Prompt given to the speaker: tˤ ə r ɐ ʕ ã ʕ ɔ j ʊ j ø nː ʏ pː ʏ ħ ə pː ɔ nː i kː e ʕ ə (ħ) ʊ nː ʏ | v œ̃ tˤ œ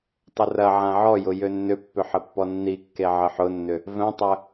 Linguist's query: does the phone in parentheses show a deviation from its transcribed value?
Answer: no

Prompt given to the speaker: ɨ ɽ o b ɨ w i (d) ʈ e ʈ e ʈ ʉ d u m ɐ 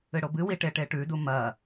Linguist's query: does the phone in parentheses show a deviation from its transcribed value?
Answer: yes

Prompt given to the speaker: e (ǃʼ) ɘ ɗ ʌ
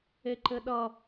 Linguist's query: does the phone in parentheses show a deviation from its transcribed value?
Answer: yes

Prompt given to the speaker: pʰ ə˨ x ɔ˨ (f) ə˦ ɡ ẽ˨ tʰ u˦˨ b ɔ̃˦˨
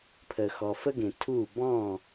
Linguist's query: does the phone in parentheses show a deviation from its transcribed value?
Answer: no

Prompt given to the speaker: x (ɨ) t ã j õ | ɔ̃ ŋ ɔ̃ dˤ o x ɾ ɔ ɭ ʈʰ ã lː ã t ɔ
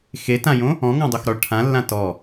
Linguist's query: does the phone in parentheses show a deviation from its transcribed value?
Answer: yes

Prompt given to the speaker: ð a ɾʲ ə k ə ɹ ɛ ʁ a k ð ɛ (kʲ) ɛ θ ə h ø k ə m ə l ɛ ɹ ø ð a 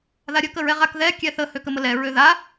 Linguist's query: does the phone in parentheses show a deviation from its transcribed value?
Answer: no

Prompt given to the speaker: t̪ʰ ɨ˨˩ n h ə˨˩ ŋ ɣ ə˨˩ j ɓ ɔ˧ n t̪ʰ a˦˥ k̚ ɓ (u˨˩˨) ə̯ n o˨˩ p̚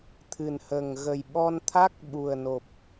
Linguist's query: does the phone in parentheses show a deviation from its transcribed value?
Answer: yes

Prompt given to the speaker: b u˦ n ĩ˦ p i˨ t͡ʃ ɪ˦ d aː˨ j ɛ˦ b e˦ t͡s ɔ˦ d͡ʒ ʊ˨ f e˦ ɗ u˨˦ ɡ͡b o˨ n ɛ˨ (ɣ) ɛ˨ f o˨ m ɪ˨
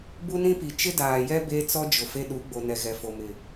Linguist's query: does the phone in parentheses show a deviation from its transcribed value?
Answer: no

